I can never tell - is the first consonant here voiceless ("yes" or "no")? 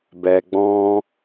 no